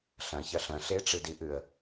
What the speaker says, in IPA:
ɬ ɐ̃ ç ɐ ɬ ɐ̃ ɬ e ʈ͡ʂ ɨ d i ʔ ɨ ə̯

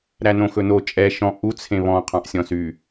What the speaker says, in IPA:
ɾ æ n õ x ɵ n o t͡ʃʼ ɛ ʃ ɔ̃ ʔ u t͡sʰ ẽ β ɔ̃ qʰ ɑ̃ ʔ sʲ ɔ̃ s y

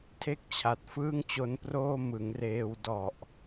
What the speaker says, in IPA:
tʰ e˥˩ k̚ t͡ɕʰ a˨˩ t̚ f ɯː˥˩ ŋ t͡ɕ o˦˥ n p r oː˥˩ m ɯ˩˦ ŋ r eː˧ w d ɔ˨˩ ʔ

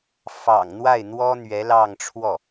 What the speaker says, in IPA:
f ɑ̰˨˩ ŋ n̪ w a˥˩ ɪ̯ n̪ w ɔ˥ n̪ ɥ ɛ˧˥ l ɑ˥˧ ŋ ʈ͡ʂʰ w ɔ˥˩

